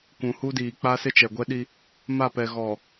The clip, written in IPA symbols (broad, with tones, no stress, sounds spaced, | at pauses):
kʷ ũ˨ h u˦ d iː˨ k͡p a˦ s ɪ˦ t͡ʃ ɛ˨ ɡʷ ɛ˦ ɗ i˦ | m a˦˨ p ɛ˨ ɣ ɔ˨